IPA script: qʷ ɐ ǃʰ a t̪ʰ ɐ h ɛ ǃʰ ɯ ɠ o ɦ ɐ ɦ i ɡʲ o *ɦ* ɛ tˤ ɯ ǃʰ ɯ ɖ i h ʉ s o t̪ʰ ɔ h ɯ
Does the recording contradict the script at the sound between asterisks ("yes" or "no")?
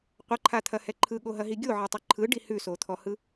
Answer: yes